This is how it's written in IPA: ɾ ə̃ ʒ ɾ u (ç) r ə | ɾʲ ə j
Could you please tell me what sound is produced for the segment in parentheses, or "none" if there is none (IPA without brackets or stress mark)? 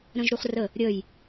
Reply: χ